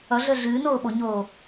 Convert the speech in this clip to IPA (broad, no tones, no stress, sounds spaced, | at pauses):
ʌ ɮ əː ɮ ɨː n oː ɓ o ɲ oː